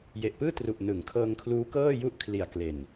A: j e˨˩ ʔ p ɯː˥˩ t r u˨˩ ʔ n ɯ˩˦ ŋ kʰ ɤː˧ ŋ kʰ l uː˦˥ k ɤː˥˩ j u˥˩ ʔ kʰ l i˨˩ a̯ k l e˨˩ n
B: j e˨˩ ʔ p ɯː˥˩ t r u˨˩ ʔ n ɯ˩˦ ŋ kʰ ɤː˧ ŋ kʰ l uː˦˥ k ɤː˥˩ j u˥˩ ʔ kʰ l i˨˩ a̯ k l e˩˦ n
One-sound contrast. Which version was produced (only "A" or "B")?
A